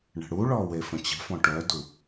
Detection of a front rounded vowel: present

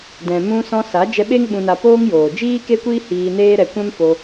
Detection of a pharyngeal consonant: absent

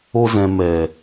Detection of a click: absent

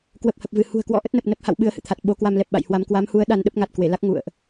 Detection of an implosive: present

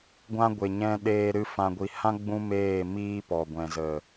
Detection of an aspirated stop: absent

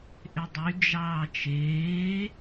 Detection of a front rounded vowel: present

